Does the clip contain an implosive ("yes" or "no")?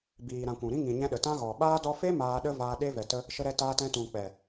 yes